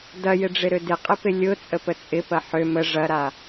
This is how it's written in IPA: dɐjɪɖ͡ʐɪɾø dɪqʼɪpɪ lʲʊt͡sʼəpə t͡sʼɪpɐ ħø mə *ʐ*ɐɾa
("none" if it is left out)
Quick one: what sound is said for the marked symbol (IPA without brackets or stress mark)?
ʐ